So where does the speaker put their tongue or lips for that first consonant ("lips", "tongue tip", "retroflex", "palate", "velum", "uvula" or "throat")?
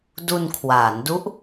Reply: tongue tip